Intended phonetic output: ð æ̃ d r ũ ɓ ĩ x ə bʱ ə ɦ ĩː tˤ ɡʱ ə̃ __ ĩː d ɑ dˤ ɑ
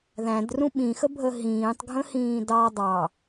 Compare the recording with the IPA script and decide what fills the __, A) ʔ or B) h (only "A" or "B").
B